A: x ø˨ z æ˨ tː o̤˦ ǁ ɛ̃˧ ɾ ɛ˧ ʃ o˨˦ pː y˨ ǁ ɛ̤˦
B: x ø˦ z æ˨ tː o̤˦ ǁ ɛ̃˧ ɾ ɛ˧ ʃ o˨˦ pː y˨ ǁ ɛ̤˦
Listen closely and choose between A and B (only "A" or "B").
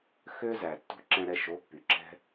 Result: B